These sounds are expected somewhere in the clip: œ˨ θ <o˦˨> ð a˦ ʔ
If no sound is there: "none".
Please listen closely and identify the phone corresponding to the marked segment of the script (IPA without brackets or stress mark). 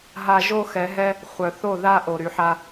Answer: o˦˨